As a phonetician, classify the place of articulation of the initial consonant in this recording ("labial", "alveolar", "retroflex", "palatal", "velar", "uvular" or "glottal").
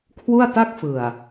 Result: velar